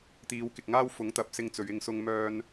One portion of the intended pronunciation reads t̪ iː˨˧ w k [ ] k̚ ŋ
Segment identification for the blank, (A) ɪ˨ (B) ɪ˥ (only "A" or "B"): A